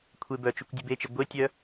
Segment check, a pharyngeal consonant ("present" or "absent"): absent